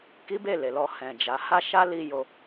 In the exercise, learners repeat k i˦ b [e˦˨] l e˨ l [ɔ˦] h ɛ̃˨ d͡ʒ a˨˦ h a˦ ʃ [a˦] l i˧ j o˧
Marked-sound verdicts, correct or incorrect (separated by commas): correct, incorrect, correct